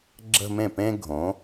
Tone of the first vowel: falling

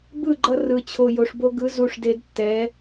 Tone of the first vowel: falling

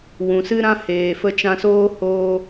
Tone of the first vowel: low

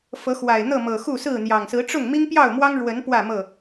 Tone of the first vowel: rising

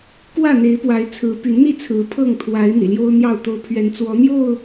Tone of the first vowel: falling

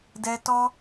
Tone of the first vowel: high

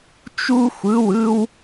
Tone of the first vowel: high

